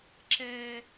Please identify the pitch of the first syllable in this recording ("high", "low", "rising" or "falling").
high